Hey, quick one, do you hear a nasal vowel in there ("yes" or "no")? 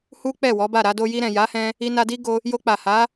yes